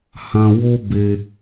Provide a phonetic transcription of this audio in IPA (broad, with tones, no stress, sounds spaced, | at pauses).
h ã˧ w o˦ b e˧